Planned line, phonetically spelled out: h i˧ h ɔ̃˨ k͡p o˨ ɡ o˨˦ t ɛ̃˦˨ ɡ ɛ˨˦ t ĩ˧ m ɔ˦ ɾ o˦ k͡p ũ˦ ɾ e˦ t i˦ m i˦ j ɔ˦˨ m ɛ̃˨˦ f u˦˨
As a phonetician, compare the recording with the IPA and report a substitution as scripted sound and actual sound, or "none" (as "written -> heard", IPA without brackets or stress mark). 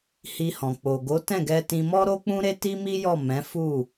ɛ˨˦ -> ɛ˧